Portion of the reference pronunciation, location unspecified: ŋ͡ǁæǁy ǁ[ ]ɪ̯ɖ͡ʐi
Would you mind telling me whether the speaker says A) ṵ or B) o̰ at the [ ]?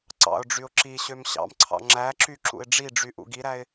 A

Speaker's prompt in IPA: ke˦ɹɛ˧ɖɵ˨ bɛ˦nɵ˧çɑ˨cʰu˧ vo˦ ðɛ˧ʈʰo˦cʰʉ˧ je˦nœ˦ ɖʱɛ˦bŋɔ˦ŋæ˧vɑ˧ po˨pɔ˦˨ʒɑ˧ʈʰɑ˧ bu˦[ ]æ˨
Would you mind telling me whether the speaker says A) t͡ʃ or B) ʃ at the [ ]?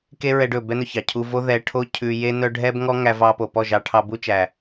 A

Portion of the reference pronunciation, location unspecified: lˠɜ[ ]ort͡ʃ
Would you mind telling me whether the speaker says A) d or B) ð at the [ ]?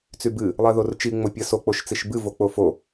B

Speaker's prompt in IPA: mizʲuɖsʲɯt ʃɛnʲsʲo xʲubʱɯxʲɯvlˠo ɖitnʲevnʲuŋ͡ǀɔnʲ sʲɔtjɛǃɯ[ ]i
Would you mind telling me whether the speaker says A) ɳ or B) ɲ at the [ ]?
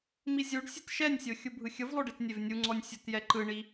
A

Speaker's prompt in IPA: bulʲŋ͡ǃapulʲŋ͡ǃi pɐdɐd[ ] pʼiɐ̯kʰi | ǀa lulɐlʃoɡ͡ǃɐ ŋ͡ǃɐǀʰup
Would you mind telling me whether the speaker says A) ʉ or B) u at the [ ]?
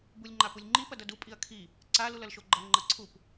B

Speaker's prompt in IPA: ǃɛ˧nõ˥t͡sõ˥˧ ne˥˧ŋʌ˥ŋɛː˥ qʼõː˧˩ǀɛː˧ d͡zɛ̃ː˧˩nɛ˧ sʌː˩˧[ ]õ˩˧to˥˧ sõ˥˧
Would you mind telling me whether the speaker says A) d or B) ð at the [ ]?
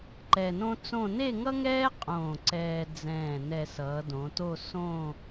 A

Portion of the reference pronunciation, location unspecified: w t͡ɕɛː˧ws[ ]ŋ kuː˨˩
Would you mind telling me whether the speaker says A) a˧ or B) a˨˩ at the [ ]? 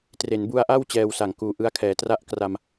B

